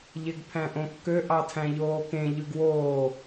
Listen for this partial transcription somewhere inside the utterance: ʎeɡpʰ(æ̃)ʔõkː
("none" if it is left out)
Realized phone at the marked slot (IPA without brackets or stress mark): æ̃